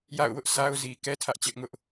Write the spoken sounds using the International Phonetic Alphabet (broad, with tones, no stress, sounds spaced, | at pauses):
j a̰˦˨ ʊ̯ w ʊ˦ ʔ sʰ a˦ ʊ̯ z i˨ k ɛ˦ tʰ ä˦ ʔ t͡ɕ ɪ˦ ʔ ŋ ʊ˦ ʔ